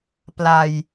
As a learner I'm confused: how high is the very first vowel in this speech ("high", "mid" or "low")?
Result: low